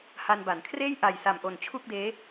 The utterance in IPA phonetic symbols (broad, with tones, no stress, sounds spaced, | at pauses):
h a˧ n b a˩˦ n kʰ r eː˥˩ j ʔ a˨˩ j s a˨˩ m ʔ o˨˩ n t͡ɕʰ u˥˩ k̚ d eː˦˥